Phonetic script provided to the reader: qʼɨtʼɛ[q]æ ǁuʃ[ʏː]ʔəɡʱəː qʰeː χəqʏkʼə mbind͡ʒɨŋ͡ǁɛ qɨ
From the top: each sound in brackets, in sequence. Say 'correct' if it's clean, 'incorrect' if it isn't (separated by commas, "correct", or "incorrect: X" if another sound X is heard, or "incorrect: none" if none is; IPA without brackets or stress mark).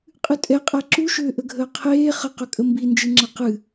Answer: incorrect: qʼ, correct